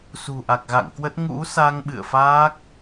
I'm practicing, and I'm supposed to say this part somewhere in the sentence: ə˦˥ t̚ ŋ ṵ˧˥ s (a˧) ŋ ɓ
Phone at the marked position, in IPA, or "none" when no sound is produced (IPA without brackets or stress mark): a˧